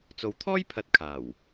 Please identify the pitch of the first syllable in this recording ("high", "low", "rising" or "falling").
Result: low